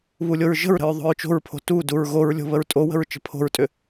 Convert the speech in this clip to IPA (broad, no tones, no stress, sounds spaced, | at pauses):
β u lʲ o ɹ ʒ ə̤ ɹ ɾ ə̤ ɹ ðˤ o̤ ɹ t͡ʃ o̤ ɹ pʰ o̤ t u d u ɹ ɣ o ɹ lʲ o̤ β ə ɹ tʼ o w ə̤ ɹ t͡ʃ ə̤ pʰ o̤ ɹ tʼ ʏ